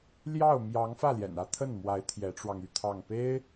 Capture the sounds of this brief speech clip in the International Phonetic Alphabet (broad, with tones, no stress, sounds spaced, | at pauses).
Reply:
l j ɑ˥˩ ʊ̯ m j ɑ˧˥ ŋ f ä˥˩ l j ɛ̰˨˩ n ä˥ t̪ʰ ə˥˩ n m w a˧˥ ɪ̯ t̪ʰ j ɛ˧˥ ʈ͡ʂ w ɑ˧ ŋ y˥˧ t̪ʰ ɑ˥˩ ŋ p e˥ ɪ̯